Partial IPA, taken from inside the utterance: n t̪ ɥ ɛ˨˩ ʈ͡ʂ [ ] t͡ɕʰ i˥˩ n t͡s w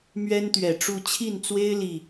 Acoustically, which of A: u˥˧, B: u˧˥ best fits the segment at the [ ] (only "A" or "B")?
A